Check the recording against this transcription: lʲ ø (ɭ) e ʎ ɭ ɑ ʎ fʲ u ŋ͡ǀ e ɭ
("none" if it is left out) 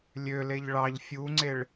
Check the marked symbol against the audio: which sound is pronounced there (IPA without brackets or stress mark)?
l